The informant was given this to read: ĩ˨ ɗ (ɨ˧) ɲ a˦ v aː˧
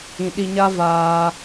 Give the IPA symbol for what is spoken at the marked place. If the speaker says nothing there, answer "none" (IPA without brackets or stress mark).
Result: i˧